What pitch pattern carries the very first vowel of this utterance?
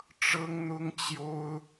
high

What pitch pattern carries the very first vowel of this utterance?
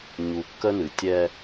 low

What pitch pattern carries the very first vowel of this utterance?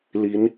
rising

